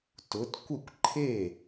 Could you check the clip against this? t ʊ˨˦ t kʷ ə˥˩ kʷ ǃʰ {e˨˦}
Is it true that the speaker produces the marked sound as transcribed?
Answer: no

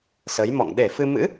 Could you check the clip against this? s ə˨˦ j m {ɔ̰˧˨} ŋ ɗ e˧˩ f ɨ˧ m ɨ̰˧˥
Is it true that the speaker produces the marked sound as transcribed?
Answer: yes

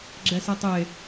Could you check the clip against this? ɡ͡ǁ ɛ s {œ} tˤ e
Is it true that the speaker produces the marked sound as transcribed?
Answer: no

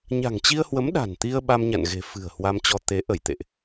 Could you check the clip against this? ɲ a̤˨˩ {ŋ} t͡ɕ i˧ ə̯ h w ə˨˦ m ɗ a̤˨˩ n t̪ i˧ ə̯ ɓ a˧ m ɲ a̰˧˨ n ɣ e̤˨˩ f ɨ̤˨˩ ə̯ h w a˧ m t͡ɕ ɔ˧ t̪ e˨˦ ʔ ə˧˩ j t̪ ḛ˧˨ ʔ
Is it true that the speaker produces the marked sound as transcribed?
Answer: yes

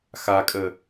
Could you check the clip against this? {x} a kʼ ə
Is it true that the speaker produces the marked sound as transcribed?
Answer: yes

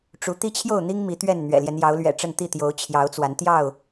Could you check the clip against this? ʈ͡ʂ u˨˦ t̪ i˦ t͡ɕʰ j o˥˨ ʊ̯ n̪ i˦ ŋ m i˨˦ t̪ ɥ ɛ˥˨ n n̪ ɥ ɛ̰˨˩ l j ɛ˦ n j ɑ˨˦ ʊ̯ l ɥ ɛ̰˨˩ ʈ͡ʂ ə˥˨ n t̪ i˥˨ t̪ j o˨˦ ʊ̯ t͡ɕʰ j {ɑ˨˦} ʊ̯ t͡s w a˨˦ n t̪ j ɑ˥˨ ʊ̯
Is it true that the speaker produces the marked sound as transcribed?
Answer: yes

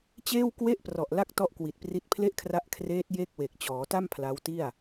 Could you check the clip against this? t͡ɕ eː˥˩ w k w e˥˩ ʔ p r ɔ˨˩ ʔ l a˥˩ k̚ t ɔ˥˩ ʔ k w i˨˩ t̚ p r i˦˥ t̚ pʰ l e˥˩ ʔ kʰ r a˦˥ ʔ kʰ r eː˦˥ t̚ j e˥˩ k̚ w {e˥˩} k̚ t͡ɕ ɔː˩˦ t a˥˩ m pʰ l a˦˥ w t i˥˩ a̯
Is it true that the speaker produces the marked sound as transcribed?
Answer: no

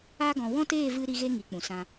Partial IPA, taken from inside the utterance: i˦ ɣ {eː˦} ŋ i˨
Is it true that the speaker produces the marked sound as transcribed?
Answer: no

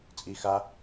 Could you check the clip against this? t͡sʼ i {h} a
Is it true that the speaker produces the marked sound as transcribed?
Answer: no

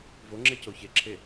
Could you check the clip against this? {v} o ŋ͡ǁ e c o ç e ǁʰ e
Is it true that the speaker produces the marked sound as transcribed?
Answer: yes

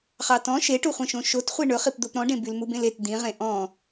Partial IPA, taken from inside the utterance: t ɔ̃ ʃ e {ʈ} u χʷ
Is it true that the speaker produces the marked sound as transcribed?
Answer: yes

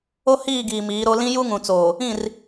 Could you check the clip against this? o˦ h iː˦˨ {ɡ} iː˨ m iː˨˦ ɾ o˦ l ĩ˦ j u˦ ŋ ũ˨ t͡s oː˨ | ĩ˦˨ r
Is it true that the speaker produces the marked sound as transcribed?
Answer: yes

